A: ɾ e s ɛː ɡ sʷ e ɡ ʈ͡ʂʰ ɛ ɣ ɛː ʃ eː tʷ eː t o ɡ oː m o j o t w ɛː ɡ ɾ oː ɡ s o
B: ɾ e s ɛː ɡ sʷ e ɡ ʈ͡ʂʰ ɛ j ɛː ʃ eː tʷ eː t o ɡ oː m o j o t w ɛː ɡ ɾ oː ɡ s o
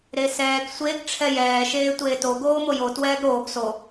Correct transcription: B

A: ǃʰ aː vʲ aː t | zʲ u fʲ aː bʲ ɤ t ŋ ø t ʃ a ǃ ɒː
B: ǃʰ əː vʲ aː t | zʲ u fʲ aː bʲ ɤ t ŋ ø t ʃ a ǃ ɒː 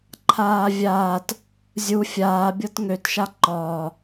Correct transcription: A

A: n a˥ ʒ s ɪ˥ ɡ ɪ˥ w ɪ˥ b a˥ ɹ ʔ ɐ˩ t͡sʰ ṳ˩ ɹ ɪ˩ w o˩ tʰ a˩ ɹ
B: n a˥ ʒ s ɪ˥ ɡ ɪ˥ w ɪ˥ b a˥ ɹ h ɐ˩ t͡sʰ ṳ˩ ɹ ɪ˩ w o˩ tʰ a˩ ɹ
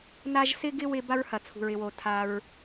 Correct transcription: B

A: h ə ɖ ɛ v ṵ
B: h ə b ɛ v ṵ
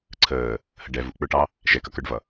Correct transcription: A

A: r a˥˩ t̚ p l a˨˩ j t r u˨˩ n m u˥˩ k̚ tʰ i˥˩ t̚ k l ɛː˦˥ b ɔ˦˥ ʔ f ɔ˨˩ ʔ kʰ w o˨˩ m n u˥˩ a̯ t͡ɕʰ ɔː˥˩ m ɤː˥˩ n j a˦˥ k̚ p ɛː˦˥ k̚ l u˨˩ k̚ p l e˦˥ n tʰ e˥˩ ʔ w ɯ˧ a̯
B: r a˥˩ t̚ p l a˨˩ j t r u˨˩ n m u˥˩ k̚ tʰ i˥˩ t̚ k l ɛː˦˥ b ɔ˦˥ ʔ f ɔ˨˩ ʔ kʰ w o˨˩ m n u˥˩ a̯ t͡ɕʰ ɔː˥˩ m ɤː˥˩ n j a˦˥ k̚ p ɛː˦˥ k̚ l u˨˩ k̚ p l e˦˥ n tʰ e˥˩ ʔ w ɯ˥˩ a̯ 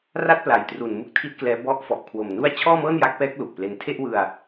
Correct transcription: A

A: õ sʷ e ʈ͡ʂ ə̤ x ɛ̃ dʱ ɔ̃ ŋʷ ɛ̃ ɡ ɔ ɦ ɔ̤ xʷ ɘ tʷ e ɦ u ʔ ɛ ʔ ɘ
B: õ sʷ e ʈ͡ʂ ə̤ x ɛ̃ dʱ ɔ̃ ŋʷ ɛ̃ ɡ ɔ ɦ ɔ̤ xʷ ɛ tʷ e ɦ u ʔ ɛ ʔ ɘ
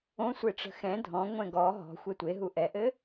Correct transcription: B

